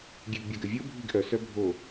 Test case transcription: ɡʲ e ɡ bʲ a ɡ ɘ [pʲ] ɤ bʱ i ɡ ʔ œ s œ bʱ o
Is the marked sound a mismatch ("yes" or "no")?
yes